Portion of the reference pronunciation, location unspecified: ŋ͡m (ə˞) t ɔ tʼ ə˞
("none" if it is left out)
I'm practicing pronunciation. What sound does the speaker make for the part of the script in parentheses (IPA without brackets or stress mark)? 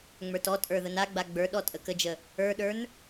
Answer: ə˞